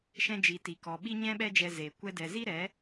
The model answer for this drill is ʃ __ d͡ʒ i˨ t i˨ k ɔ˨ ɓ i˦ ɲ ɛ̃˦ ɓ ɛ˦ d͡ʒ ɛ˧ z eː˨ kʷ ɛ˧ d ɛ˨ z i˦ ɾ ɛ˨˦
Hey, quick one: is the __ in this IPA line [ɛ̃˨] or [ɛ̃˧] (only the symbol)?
ɛ̃˧